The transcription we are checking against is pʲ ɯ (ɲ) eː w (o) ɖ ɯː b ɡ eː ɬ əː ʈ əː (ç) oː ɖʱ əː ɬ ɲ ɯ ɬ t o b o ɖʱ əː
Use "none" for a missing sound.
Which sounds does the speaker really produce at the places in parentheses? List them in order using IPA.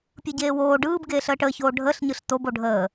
ɟ, oː, ç

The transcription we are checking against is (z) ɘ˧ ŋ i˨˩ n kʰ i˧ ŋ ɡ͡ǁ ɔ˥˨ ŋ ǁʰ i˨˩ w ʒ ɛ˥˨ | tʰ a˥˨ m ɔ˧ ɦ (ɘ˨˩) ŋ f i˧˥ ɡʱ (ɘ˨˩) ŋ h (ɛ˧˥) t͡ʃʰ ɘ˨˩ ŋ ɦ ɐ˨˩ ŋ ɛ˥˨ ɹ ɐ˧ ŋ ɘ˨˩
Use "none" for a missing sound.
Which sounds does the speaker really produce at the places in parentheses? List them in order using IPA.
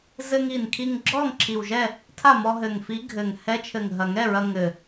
z, ɘ˨˩, ɘ˨˩, ɛ˧˥

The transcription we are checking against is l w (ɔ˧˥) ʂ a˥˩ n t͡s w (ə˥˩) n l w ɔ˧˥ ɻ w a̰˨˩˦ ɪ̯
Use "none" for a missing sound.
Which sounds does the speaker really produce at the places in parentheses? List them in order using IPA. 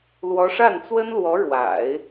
ɔ˧˥, ə˥

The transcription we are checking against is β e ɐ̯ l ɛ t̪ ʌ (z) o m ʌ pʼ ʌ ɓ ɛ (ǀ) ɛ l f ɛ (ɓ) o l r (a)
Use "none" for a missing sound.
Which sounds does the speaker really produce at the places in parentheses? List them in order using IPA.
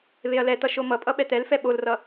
ʃ, t̪, ɓ, ʌ

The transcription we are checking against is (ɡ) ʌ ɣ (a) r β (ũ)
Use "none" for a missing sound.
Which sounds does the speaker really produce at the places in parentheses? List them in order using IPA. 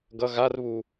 ɡ, a, u

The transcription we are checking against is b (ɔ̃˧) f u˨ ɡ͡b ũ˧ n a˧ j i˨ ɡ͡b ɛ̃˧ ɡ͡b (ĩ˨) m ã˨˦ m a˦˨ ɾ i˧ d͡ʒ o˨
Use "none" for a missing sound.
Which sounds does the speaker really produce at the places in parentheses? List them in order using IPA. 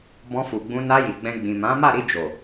ɔ̃˧, ĩ˨

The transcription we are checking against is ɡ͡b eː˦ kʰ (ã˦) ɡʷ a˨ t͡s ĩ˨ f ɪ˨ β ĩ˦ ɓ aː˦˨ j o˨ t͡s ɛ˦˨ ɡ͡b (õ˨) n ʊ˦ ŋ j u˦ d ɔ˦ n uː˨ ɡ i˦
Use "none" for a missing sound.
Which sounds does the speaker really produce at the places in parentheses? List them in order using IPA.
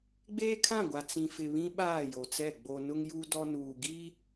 ã˦˨, o˨

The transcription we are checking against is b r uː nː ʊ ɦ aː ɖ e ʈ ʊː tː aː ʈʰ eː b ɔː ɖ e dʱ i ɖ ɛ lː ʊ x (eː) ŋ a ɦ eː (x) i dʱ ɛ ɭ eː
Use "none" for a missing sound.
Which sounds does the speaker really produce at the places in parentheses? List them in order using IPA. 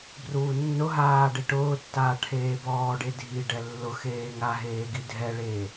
eː, ɡ

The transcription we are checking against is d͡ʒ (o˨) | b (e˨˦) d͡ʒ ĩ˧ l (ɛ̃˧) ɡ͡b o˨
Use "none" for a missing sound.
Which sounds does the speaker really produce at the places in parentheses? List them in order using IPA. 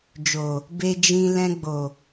o˨, e˧, ɛ̃˧

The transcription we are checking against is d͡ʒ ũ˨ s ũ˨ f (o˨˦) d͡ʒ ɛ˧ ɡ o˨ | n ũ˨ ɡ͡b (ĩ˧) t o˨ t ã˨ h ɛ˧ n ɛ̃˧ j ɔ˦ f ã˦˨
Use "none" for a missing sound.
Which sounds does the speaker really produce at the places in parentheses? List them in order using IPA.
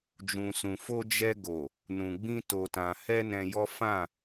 o˧, ĩ˧

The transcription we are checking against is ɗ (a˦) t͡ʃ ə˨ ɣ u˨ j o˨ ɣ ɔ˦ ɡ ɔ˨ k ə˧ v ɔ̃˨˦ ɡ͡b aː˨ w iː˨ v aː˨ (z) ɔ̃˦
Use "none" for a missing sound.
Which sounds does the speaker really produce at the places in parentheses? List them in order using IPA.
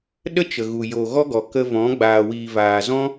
ə˦, z

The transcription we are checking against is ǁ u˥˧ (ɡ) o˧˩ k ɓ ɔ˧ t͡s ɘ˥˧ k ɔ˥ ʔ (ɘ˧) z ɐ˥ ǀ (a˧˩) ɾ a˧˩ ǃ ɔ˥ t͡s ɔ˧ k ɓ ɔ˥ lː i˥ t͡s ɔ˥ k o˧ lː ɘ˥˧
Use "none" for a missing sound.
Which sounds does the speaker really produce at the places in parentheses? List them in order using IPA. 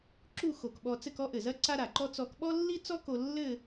x, ɘ˧˩, a˥

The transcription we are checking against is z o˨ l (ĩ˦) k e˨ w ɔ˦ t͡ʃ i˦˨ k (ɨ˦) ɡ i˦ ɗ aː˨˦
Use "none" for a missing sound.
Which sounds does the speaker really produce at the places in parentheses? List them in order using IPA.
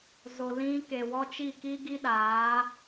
ĩ˧, i˦

